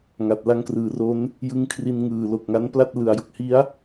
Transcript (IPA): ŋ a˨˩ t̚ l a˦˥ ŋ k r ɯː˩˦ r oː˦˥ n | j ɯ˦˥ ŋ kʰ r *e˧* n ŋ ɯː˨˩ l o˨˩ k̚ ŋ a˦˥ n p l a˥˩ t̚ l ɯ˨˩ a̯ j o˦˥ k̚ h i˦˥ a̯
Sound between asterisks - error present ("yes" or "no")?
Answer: yes